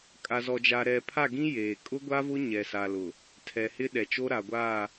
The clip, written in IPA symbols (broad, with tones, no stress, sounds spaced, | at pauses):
kʼ a˨ z ɔ˨ d͡ʒ a˨ ɾ ɛ˨ pʰ a˦˨ ɡ ĩ˦ j eː˨ kʼ ʊ˦ ɡʷ a˦ v ʊ˦ ɲ ɛ˨ s a˨ l ʊ˨ | tʰ ɛ˨ h ɪ˦ ɗ ɛ˨ t͡ʃ o˦ ɾ a˨ ɡʷ aː˦˨